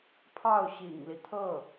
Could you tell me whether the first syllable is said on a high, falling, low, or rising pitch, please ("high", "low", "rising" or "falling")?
falling